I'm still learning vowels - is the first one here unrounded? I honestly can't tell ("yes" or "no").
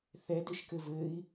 yes